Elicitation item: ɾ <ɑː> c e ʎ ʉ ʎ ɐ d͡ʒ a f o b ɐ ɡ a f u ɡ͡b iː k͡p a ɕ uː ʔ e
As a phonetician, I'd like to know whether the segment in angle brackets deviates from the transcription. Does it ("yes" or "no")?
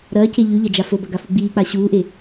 yes